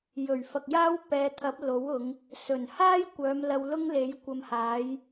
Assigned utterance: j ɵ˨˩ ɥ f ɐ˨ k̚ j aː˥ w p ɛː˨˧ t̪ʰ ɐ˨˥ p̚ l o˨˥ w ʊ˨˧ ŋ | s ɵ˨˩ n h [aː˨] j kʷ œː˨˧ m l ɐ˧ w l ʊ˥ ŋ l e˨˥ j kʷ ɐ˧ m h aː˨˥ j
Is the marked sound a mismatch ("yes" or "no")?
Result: yes